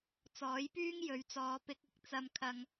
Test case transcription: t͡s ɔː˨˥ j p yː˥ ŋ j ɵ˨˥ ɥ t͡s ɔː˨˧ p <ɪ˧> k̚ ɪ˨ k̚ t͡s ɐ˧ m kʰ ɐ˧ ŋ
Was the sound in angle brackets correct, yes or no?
yes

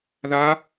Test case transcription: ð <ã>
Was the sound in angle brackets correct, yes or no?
no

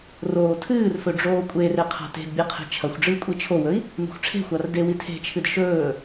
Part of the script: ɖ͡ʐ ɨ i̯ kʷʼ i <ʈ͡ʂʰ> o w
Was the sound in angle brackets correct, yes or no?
no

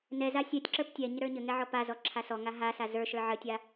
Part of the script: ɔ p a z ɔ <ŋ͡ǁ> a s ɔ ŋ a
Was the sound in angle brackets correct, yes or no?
no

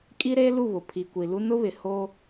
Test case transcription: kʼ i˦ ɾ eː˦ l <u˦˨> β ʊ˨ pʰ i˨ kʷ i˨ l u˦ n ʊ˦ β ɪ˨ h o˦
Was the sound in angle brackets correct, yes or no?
yes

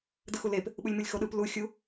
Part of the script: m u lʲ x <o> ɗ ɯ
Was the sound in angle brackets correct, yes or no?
yes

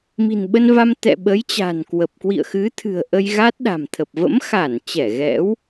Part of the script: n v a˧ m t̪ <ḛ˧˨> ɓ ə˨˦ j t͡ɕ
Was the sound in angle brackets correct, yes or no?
no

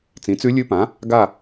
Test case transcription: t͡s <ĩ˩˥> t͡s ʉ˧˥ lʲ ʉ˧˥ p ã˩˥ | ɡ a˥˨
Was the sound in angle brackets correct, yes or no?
yes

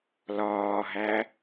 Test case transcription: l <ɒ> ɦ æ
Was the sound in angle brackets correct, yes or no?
no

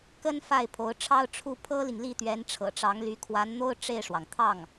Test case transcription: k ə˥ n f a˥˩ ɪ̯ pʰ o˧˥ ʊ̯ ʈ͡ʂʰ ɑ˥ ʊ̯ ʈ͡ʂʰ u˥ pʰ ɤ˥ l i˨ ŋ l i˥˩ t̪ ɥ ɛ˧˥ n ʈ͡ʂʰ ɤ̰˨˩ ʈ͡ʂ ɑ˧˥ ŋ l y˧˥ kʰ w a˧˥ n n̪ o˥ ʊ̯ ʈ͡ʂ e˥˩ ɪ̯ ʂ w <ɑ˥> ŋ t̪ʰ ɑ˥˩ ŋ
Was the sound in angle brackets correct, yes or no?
no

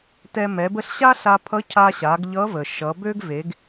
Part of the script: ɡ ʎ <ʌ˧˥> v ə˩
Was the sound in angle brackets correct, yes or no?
yes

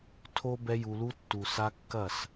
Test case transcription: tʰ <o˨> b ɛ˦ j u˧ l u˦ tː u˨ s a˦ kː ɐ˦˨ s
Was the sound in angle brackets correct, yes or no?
no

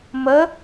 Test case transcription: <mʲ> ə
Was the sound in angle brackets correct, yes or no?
no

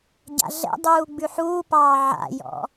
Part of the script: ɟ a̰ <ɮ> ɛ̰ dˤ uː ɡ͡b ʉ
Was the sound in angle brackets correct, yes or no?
yes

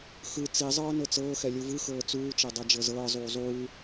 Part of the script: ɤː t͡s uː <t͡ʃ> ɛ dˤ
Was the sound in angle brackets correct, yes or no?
yes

